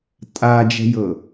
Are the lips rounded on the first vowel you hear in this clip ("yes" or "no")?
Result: no